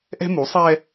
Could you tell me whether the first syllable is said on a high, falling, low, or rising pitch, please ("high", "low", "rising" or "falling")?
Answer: high